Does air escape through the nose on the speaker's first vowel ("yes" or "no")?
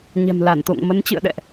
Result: no